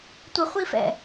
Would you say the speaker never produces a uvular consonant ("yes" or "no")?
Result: no